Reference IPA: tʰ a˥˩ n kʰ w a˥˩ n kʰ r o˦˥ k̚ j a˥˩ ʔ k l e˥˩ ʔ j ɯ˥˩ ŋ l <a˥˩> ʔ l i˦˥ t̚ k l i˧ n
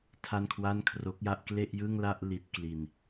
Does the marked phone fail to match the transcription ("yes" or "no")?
no